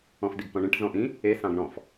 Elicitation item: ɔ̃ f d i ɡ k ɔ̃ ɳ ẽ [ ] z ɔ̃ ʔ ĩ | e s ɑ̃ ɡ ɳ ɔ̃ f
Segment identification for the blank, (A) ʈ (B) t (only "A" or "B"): A